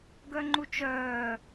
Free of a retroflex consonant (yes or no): yes